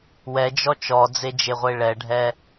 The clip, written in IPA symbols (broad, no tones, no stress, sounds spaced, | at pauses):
w ɛ d͡ʒ ɔ t͡ʃ ɔ d͡z e d͡ʒ e ʁʷ e ɭ ɛ ɖʱ ɛ